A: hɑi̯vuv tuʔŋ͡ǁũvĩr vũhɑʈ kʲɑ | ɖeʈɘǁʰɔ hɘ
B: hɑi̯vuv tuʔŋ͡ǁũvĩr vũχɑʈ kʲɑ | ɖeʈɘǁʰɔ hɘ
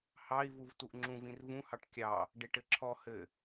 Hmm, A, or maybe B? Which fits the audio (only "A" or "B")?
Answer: A